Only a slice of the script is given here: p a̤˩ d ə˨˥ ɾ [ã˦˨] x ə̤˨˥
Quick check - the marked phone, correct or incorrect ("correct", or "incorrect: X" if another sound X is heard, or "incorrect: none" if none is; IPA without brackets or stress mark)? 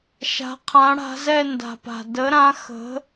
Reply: incorrect: ã˨˥